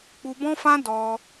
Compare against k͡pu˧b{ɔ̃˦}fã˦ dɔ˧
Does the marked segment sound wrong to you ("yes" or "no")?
no